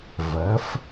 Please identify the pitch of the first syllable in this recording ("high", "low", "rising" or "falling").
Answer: rising